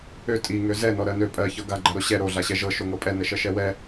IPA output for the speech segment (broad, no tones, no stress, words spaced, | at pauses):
ø tʼi ŋøzɛ nɔɾɜnø pʼɜ çɤɡa ɡ͡ǃaɾoɕɛ ɾo ɮaɕɛʒɤ ʃoŋɤpʼɛ nɛʃɜʃɛwɛ